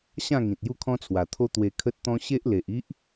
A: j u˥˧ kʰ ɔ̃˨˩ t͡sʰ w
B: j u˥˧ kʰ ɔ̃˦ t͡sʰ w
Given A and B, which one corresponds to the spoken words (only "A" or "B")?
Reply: B